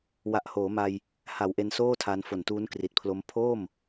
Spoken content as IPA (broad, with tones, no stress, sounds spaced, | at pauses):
w a˨˩ ʔ h oː˩˦ m a˧ j | h a˩˦ w ʔ e˧ n s oː˥˩ tʰ a˧ n f o˨˩ n t uː˦˥ n k r i˨˩ t̚ pʰ l o˦˥ m pʰ oː˥˩ m